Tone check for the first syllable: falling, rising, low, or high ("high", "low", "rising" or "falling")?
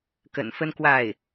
low